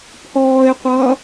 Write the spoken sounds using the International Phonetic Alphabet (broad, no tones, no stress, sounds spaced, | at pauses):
pʰ ɔː ɪ̯ qʷ ʌː